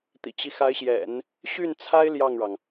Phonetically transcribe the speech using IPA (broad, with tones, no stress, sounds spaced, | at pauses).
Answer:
t̪ ḭ˨˩ t͡ɕ i˦ x a˧˥ ɪ̯ ɕ j ɛ̰˨˩˦ n | ɕ y˥˩ n t͡sʰ a˥ ɪ̯ l j ɑ˥˩ ŋ ɻ ɑ˩ ŋ